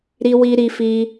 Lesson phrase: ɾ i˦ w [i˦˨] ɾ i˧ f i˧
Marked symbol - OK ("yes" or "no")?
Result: no